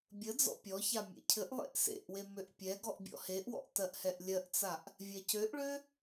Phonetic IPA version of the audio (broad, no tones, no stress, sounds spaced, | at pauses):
bʲ ə d͡z ɔ̰ pʲ ɔ ç a mʲ ḛ cʰ ɘ ʔ lˠ ḛ ʔ s ḛ ʔ w e m ø ʔ pʲ ɛ ɡ ɔ ʔ bʲ ɔ̰ h e ʔ w ɔ̰ ʔ t ɜ ʔ h ɛ ʔ lʲ ɜ ʔ t͡s a ʔ | vʲ ɛ c ø ʔ ɭ ø